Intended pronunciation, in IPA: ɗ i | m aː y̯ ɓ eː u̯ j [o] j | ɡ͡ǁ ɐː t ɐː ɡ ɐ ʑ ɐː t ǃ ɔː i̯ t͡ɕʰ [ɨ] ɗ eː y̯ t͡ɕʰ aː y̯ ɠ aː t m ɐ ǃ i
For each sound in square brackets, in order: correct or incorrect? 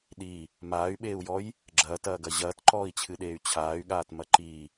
incorrect, correct

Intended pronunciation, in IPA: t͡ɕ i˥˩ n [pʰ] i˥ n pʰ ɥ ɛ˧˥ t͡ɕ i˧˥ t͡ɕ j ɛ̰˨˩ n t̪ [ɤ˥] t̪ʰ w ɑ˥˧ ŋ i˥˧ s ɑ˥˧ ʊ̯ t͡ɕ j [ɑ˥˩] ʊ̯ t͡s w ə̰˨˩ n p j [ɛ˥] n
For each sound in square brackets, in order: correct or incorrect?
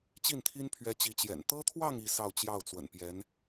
incorrect, correct, correct, incorrect

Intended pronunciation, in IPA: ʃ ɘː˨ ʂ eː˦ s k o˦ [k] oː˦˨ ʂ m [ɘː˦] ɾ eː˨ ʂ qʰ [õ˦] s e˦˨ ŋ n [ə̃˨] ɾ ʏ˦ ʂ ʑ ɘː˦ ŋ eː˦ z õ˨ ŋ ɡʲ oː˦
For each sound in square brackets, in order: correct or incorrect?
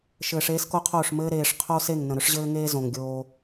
incorrect, correct, incorrect, correct

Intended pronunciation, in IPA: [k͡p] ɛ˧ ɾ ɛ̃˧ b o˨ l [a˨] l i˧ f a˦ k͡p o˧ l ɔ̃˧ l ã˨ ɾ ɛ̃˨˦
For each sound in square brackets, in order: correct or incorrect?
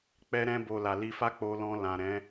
correct, correct

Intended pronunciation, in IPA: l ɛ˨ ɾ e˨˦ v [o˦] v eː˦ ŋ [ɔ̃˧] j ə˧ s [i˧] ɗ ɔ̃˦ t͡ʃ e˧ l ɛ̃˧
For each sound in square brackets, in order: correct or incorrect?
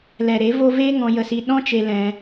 correct, correct, correct

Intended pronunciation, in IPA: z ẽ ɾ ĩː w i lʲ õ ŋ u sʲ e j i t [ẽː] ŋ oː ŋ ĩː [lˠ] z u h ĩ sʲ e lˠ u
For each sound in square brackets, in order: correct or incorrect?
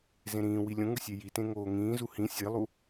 incorrect, incorrect

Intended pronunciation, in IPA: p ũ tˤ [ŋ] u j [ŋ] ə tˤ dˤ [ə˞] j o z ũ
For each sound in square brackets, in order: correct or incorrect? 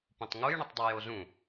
correct, incorrect, incorrect

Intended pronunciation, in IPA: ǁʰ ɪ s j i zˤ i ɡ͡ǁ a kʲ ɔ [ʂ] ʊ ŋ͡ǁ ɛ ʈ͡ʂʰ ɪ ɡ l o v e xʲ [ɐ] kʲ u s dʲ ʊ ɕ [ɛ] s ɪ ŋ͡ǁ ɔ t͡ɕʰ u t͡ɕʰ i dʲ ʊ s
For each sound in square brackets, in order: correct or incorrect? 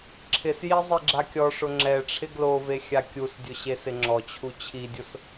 correct, incorrect, incorrect

